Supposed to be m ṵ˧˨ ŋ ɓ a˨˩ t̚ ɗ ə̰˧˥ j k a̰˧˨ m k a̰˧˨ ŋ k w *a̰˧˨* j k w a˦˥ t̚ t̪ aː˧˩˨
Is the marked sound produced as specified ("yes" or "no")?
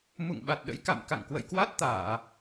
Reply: no